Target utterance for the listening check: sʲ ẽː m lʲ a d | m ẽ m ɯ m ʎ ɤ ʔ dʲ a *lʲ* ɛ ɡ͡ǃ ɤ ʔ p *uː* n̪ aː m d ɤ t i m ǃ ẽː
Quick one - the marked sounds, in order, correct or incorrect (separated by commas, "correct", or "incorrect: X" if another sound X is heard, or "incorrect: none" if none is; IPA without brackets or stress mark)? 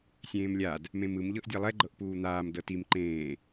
incorrect: lˠ, correct